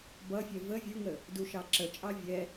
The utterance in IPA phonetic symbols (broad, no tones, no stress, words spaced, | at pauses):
bʌfʲɜ və vʲuŋə | duʃɑǁət͡ʃʼɑ vʲɛ